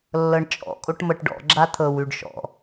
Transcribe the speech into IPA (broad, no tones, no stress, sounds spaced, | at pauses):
lː ɤ ɳ t͡ʃʼ ɔ̰ kʼ o ʈ m ɤ ʈ ɖ ɔ̰ ɡ͡ǁ a t̪ʰ ɤ w ʉ ɖ ʃ ɔ̰